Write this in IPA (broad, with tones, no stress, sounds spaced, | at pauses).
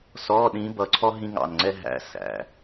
s ɔ˧˥˧ ɗ ĩ˧˥ b ʌ˧˥ ǀʰ ɔ˥ ɦ ĩ˥ ŋ ɑ̰˦˨ n ŋ͡ǀ ɛ˥ ɦ æ̰˧˥ s æ̰˩˧